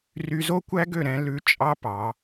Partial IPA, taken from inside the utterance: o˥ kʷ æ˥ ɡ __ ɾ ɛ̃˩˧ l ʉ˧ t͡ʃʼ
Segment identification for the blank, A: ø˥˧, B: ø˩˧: A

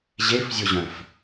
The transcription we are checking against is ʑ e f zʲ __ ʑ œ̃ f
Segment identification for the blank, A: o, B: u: A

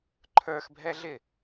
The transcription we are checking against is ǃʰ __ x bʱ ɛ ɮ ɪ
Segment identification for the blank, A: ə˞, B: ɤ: A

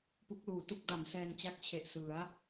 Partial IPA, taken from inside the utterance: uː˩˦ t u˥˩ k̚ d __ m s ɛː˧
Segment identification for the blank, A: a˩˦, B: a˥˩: A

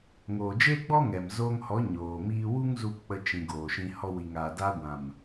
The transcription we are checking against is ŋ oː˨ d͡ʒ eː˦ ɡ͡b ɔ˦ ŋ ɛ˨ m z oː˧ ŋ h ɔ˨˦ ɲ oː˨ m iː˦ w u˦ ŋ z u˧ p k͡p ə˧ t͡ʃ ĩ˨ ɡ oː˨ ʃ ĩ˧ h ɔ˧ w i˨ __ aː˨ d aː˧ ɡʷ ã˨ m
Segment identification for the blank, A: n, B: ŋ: B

